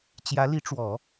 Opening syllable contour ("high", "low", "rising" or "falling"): rising